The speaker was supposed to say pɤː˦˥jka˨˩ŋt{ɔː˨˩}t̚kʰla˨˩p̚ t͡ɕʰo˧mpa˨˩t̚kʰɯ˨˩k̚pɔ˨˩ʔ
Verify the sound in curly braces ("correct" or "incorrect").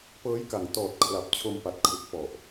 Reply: correct